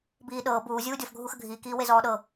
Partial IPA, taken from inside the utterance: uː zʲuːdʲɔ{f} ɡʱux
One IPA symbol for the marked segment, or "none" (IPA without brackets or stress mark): f